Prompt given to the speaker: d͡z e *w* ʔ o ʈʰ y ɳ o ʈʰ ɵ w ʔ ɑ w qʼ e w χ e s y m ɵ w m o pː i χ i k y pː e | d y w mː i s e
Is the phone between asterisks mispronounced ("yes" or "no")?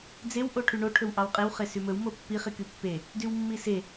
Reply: no